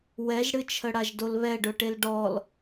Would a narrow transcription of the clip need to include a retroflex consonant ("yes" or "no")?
yes